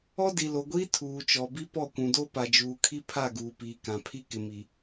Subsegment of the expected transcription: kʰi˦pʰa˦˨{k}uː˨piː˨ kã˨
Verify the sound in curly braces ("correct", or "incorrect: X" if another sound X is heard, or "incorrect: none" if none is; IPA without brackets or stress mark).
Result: incorrect: ɡ